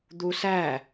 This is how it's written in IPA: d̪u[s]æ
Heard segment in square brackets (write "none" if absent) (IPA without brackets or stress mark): s